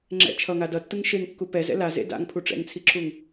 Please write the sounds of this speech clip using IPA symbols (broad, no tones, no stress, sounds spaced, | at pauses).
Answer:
ŋ͡ǁ ɛ̰ t͡ʃʰ ʌ ŋ a d ʌ tː ɯ ŋ ʃ e ŋ kː u p ɛ z ɛ̰ l a z ḛ d a̰ ŋ pʰ u ʈ͡ʂ ɛ̰ ŋ t͡sʰ i ǁʰ u ŋ